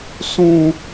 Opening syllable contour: high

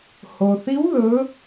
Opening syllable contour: low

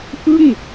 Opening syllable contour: falling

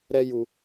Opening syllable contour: high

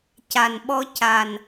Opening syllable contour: low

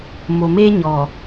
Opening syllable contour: low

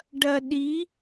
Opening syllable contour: low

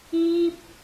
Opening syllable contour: high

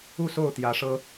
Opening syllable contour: falling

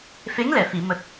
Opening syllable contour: rising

